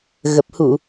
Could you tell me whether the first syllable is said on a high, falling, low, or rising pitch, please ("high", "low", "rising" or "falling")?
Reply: low